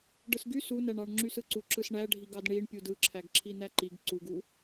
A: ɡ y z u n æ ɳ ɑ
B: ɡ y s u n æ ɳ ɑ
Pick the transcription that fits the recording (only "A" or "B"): B